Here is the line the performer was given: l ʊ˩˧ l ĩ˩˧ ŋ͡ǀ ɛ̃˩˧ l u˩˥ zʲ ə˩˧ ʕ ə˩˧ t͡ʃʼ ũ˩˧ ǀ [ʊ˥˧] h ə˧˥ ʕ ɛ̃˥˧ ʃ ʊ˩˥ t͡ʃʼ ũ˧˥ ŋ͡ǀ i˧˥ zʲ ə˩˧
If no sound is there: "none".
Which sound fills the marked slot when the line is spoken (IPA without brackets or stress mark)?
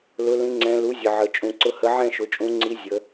ʊ˧˥